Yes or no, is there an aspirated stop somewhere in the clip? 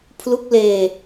yes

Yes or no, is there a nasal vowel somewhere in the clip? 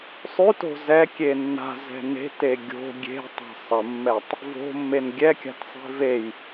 no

